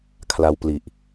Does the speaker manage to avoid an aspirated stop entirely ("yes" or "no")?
no